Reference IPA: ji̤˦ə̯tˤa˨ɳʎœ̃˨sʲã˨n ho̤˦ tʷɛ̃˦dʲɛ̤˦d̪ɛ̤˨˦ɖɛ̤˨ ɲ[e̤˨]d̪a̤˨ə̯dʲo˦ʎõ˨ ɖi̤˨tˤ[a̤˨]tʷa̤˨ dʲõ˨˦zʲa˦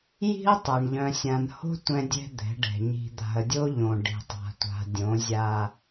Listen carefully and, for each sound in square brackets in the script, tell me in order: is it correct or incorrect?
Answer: incorrect: i̤˨, correct

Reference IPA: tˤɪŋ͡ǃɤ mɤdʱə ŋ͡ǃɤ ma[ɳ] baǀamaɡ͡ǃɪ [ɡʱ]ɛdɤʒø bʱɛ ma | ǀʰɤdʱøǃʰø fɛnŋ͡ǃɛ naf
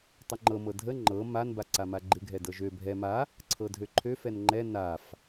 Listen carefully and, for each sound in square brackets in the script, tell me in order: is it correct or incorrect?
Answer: incorrect: n, correct

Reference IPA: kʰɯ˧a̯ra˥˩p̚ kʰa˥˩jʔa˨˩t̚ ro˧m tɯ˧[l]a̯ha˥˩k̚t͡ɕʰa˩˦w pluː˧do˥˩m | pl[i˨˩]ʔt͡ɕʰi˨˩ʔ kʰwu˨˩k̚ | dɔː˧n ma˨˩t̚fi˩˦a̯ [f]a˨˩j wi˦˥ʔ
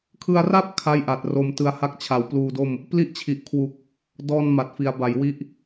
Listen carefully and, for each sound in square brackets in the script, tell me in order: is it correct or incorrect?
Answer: incorrect: none, incorrect: i˥˩, incorrect: b

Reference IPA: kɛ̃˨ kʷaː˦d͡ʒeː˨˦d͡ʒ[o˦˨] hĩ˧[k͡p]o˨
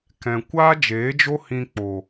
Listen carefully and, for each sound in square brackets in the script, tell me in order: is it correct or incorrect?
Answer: incorrect: o˦, correct

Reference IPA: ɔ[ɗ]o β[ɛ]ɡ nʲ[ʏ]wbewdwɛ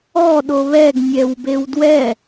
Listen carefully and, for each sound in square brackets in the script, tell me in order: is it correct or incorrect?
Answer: correct, correct, incorrect: ɛ

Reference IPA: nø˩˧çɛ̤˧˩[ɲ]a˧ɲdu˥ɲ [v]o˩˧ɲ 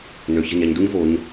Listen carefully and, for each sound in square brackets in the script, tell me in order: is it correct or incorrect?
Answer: correct, correct

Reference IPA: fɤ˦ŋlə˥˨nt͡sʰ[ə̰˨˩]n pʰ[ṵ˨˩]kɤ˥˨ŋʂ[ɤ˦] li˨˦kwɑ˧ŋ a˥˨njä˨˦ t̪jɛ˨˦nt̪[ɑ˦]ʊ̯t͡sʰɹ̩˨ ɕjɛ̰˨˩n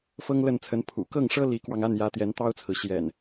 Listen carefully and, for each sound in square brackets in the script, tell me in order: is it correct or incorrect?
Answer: incorrect: ə˨˦, correct, correct, correct

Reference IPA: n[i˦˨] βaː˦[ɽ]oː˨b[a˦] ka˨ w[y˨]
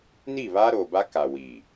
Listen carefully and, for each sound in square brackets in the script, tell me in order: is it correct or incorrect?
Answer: correct, incorrect: ɾ, correct, incorrect: i˨

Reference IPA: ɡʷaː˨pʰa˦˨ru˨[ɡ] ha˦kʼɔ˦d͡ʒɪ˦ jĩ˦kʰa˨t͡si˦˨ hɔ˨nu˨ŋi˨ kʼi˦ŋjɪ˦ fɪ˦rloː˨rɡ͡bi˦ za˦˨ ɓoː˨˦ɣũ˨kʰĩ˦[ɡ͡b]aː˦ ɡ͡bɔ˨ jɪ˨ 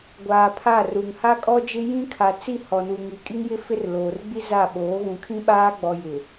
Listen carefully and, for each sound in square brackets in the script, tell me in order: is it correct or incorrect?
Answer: incorrect: ŋ, incorrect: ɓ

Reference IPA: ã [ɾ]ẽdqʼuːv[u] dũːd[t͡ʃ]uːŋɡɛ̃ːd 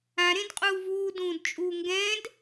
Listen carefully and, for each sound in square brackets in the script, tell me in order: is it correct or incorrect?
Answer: correct, incorrect: uː, incorrect: t͡ʃʼ

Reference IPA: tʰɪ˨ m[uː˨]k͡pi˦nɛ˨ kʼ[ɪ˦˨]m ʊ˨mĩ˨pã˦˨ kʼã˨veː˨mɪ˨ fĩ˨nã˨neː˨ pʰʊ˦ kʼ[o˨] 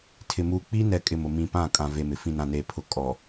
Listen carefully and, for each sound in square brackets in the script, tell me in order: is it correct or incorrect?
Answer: correct, incorrect: ɪ˨, incorrect: ɔ˨

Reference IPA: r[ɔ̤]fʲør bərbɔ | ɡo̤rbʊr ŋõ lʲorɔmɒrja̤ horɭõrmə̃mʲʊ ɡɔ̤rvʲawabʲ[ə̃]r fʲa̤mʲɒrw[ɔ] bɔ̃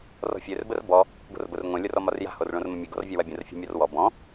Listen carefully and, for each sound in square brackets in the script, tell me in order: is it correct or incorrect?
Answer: correct, correct, correct

